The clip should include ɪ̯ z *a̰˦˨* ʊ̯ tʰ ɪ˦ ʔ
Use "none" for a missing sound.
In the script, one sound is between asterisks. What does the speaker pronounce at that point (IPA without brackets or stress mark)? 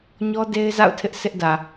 a̰˦˨